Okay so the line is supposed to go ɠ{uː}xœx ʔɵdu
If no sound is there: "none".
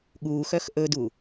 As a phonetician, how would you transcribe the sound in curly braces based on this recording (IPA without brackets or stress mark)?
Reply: uː